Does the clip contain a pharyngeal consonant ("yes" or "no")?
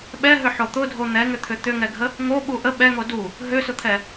yes